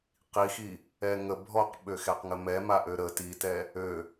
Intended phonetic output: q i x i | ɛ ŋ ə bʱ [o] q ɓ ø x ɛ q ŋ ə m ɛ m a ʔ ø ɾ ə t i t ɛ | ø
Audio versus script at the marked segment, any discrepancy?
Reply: yes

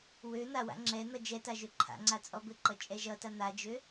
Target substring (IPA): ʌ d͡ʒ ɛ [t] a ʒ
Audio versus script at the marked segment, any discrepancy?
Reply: no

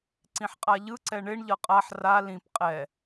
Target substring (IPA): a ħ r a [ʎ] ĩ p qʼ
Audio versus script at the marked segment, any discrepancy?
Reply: yes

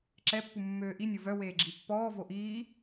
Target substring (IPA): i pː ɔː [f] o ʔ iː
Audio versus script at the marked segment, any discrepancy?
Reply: yes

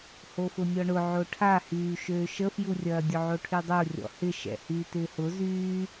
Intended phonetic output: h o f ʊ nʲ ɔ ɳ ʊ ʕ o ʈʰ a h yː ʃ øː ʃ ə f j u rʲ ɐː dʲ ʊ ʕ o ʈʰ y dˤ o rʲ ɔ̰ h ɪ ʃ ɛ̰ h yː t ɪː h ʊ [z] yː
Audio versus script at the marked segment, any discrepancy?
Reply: no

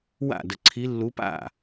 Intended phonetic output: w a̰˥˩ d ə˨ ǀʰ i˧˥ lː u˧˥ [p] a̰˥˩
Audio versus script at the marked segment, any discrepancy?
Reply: no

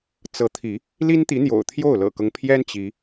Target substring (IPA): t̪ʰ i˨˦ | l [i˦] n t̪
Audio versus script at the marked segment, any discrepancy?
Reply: no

